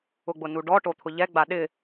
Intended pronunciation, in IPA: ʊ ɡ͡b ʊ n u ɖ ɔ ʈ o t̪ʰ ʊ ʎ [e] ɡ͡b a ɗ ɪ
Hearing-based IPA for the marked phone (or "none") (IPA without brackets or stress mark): ɛ